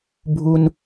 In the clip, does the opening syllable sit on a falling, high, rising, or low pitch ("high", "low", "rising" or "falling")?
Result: low